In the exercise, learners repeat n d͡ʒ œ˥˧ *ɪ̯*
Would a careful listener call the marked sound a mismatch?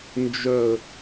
yes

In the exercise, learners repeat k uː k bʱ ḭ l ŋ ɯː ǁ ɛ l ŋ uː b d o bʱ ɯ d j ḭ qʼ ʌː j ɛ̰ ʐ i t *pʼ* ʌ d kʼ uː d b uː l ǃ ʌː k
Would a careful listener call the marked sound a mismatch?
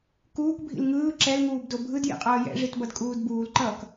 yes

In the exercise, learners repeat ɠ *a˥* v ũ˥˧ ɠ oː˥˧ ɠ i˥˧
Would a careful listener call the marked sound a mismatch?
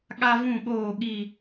no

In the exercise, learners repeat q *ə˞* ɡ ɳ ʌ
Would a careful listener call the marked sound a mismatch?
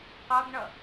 yes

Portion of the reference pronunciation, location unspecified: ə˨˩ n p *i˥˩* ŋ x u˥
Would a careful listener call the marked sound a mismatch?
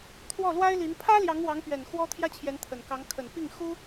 no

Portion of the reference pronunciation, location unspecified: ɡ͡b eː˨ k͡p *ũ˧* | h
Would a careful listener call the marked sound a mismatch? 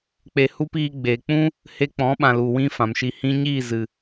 yes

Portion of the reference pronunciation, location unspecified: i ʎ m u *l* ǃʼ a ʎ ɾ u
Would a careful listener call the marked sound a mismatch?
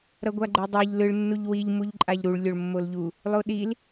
yes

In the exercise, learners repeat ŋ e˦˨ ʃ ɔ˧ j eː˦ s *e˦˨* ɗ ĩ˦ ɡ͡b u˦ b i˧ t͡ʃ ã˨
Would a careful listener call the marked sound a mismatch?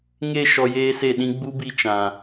no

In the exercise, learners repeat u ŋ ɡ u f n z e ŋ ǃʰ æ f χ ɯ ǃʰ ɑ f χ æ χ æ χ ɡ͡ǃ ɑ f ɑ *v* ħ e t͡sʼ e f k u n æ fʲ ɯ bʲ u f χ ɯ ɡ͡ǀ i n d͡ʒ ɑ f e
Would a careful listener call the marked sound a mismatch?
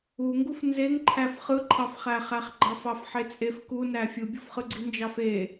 yes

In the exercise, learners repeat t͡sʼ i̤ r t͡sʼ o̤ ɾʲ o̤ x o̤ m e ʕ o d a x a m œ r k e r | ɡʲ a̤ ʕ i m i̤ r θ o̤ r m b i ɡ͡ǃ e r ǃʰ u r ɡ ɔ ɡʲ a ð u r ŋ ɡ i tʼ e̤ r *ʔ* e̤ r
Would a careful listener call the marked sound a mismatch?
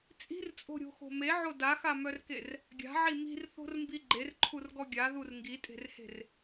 yes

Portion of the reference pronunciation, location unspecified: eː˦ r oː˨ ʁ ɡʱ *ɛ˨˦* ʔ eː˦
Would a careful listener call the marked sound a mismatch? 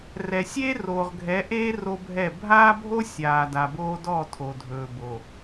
no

